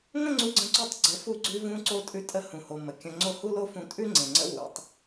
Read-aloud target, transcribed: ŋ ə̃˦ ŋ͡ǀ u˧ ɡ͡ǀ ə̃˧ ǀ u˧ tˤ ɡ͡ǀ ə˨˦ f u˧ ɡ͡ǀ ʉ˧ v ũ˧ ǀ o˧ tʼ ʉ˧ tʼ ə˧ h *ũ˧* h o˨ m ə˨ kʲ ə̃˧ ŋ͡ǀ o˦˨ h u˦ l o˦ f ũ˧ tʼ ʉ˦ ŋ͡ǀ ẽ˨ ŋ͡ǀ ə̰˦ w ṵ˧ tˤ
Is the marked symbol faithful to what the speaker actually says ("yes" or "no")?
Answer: no